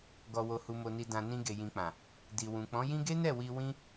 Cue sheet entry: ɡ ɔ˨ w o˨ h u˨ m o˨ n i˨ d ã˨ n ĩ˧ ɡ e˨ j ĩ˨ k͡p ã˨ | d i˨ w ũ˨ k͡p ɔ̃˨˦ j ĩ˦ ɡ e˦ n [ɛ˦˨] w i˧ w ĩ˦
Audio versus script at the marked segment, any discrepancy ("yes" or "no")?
no